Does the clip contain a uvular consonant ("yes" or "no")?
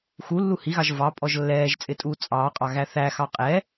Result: yes